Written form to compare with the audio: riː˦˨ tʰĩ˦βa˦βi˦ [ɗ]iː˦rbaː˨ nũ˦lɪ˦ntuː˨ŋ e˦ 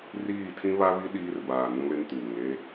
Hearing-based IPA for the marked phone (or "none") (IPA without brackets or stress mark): ɗ